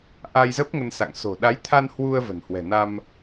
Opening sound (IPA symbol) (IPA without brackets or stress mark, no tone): ʔ